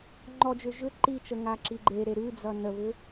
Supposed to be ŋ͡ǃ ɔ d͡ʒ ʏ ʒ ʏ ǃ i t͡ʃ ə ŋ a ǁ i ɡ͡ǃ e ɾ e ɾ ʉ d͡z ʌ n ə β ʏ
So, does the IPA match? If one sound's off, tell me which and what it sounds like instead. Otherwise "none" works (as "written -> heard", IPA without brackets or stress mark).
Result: none